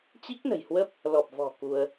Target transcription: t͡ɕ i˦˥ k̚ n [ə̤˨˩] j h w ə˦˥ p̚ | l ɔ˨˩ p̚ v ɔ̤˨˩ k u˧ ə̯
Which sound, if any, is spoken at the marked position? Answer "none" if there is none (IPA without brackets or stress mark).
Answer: ə̤˨˩